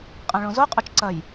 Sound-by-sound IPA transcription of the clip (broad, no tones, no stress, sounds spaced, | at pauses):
qʼ ã ɭ õ z o qʼ o t͡ʃ ǀ ɐ j